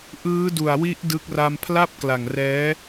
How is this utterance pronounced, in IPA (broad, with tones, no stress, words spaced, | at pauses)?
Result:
ʔɯː˦˥du˨˩a̯wi˦˥ʔ dɯ˦˥k̚ ra˧mpʰla˥˩p̚kla˨˩ŋ rɛː˦˥